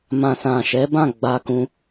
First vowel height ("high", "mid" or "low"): low